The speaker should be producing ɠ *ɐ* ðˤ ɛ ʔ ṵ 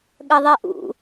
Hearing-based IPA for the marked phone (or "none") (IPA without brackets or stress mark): ɐ